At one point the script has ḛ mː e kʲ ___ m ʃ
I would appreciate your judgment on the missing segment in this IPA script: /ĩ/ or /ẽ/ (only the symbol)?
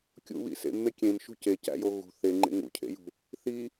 ẽ